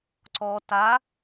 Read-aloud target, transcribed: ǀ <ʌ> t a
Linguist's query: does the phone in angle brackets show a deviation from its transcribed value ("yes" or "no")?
yes